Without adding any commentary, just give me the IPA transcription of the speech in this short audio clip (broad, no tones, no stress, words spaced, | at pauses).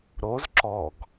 ɾoz ǁɔɡ